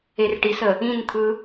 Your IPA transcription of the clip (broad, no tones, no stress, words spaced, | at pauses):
erʈisə | ĩnt̪ʰɯ